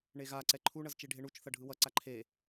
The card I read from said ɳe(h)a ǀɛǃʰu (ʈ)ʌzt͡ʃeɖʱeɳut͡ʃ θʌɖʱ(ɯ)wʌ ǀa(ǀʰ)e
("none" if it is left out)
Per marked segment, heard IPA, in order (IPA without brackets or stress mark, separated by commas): ɣ, ɳ, ɯ, ǃʰ